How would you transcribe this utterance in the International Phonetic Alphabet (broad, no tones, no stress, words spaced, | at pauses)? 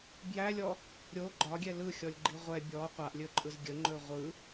bjælʲɔ | ɾʲo ɡ͡ǃɒɡʲɛ lɯxʲɔlʲɡ͡ǃi ʁʷɛ bʲɔ qʷaʔlʲɵǃʼɯz ɡʲəŋ͡ǃɵ ʁʷɯ